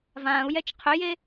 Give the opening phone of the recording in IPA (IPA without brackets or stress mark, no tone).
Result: v